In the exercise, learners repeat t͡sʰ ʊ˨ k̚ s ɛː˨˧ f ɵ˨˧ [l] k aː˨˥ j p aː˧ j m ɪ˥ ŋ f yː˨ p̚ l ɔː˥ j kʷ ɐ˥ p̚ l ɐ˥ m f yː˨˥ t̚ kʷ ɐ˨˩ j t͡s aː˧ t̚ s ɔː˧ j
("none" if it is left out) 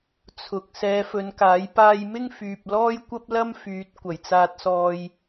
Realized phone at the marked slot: n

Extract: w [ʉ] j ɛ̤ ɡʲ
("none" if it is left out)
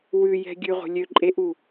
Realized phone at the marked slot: ʉ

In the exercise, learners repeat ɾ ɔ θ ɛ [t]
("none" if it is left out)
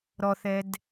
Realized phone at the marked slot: d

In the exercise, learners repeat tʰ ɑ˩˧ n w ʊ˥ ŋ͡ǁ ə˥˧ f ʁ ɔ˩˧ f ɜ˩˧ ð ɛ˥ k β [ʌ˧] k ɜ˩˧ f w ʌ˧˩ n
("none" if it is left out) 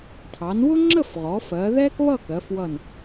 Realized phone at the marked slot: ʌ˥˧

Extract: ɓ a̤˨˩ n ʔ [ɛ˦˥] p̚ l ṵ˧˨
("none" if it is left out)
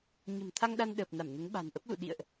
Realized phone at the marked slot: ə˦˥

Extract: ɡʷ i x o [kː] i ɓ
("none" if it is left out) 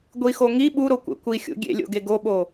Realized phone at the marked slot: ŋ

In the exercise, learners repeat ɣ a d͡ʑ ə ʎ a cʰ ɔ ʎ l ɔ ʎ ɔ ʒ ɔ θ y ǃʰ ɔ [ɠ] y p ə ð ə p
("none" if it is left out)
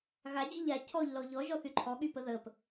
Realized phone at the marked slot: ɠ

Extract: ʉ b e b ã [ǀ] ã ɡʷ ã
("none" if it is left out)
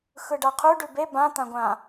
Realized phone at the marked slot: t̪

